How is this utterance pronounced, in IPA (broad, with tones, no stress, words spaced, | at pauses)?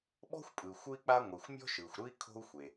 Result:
ɓɔ̤˥xʷpʼɯ˩ xʷɯ˥i̯k͡pa˥ ŋʷi˩xʷ mʲɔ̤˥ʃɯː˩xʷɾɯ˥i̯ kʰo̤˥u̯xʷe˩